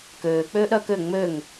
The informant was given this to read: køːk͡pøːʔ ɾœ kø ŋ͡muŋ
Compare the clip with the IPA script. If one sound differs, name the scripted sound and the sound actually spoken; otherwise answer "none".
u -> ø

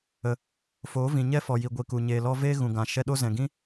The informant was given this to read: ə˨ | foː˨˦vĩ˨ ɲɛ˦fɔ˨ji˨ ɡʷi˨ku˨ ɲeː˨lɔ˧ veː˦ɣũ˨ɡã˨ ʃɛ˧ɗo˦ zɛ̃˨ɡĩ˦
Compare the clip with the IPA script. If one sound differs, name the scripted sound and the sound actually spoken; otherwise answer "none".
none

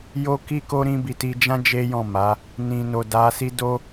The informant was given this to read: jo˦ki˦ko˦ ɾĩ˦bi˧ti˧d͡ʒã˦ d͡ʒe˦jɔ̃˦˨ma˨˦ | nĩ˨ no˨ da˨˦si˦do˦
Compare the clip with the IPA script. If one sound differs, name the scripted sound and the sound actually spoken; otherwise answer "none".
none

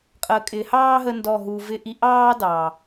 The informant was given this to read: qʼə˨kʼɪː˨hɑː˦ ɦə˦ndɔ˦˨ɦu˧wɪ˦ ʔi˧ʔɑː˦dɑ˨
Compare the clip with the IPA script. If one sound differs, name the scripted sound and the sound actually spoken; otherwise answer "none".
w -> v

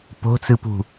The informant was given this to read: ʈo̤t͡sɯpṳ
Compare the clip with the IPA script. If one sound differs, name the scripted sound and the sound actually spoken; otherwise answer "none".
ʈ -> p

